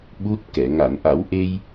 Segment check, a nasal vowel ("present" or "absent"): absent